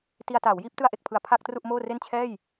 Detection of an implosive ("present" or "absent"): absent